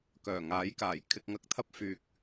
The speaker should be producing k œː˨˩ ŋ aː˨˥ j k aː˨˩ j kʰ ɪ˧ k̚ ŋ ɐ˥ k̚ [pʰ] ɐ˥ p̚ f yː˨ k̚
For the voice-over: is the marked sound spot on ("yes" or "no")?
no